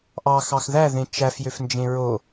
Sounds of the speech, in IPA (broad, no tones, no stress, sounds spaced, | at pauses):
ʔ ɑ x ɑ x ð æ ð ẽ t͡ʃ æ f j ø f n d͡ʒ ẽ ɹ o